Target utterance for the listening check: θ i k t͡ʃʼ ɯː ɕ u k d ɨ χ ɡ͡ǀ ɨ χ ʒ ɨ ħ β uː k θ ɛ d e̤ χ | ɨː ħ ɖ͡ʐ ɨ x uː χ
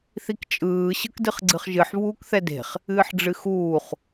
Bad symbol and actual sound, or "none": u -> ɯ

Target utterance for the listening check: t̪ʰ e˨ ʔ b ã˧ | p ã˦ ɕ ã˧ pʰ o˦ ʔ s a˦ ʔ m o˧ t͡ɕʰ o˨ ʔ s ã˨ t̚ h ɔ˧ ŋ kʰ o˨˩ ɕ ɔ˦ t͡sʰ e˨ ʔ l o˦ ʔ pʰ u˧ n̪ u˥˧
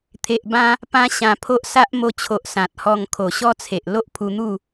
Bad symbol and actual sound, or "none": none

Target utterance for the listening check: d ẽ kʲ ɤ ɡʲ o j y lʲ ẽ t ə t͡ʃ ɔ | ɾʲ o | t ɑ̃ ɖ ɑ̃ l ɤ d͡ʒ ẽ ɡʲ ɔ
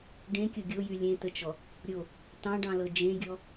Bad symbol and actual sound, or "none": d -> ɖ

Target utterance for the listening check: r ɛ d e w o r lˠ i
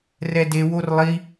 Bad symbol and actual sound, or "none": none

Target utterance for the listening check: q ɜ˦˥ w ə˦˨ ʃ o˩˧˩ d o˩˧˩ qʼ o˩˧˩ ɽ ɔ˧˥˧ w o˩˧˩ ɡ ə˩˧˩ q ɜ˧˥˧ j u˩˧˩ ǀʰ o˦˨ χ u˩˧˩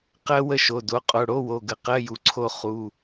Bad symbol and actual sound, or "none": ɔ˧˥˧ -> o˧˥˧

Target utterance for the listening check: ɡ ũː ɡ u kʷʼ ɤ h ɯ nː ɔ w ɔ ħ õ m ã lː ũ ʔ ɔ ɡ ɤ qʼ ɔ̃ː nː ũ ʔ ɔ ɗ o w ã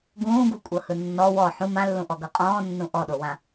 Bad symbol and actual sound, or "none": õ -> ũ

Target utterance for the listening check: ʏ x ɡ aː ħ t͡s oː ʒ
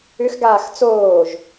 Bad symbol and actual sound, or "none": ħ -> x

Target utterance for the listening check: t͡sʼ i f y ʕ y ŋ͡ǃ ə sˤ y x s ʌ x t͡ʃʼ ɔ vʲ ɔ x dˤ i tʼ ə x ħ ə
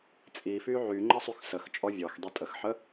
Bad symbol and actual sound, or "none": ʌ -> ə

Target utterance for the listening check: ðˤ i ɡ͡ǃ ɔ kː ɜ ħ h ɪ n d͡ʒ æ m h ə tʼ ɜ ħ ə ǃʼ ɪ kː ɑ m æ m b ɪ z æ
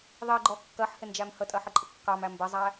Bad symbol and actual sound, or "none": z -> zˤ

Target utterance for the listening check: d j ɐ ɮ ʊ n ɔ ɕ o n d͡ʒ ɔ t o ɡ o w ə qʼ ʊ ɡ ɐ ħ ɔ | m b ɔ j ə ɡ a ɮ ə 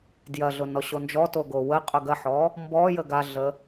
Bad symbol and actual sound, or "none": none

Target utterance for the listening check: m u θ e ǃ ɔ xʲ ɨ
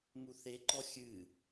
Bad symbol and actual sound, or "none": none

